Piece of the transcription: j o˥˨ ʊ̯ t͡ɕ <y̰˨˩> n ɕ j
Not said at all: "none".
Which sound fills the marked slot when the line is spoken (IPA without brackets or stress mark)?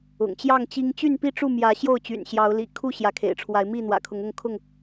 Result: y̰˨˩